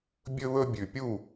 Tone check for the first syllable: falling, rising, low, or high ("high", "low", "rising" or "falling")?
high